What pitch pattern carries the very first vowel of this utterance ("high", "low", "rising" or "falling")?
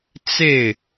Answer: falling